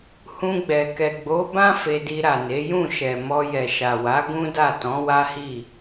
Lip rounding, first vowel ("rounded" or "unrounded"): rounded